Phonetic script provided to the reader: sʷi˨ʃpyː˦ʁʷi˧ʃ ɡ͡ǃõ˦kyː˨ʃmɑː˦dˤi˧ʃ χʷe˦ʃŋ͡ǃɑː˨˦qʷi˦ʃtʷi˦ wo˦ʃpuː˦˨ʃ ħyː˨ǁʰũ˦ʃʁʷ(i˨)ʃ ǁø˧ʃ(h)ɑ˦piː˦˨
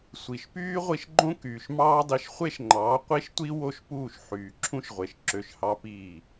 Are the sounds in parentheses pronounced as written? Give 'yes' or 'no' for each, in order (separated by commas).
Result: no, yes